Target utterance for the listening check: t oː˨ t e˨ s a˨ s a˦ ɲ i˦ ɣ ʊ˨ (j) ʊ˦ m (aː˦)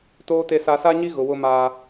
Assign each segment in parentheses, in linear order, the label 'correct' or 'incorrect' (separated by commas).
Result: incorrect, correct